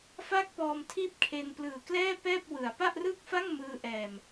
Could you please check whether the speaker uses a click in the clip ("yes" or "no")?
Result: no